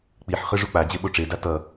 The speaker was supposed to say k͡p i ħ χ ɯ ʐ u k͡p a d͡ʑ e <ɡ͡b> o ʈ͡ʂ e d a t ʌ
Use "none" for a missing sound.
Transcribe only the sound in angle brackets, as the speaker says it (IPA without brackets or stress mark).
ɓ